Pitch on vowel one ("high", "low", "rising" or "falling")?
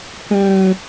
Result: high